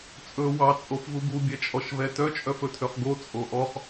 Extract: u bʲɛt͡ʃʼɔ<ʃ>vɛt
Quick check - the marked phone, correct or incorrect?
correct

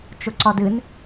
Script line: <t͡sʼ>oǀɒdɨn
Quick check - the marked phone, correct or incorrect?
incorrect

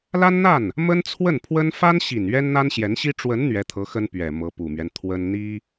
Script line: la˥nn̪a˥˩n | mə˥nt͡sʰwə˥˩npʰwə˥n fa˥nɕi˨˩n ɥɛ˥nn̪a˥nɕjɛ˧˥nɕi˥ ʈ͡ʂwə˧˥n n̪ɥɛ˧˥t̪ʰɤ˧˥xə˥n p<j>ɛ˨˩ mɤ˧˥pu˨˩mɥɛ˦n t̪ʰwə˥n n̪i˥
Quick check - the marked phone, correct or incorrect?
incorrect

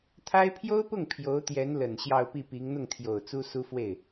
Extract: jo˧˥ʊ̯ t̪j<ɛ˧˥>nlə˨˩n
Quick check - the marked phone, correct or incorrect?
correct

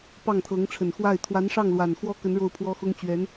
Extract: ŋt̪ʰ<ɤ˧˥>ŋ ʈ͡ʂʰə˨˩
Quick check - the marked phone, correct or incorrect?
correct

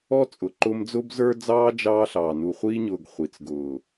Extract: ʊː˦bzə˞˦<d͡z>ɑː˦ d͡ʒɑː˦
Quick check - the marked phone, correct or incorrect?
correct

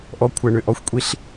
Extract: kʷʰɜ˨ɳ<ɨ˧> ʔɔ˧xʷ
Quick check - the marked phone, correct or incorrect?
incorrect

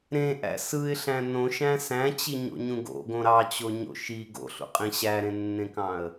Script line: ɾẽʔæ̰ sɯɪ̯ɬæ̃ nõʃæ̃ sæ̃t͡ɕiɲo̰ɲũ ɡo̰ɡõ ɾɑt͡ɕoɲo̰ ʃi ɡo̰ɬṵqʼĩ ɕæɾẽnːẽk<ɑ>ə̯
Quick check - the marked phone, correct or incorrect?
incorrect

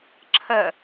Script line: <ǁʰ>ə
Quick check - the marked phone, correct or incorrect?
correct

